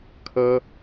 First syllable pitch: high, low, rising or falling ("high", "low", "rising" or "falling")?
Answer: high